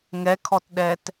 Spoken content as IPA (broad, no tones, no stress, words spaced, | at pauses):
ŋɛkʰɔtɗɛt